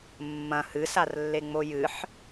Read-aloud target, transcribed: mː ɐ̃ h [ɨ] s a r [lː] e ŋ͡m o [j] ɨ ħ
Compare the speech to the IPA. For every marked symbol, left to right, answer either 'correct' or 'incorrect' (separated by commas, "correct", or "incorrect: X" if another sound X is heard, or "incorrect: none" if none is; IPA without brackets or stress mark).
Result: correct, correct, correct